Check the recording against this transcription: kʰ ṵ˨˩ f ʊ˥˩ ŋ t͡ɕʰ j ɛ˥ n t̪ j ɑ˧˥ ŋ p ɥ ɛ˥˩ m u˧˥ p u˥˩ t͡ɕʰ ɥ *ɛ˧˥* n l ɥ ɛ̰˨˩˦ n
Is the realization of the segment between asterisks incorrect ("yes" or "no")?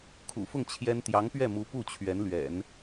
no